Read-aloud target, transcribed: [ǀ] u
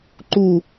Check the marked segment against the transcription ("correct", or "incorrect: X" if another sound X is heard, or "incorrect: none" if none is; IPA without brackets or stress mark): incorrect: ǃ